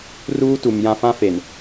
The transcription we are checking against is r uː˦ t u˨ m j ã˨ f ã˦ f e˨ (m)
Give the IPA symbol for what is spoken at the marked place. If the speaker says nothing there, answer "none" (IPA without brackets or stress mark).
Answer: n